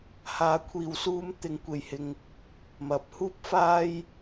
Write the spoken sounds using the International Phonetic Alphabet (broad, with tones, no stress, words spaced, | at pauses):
haː˨˧kʷʰiː˨wsuː˧m t̪ɪ˨˧ŋkʷe˨jhɪ˧ŋ | mɐ˨˥p̚ huː˥p̚faː˥j